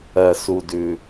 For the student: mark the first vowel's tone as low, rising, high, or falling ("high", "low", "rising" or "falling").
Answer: low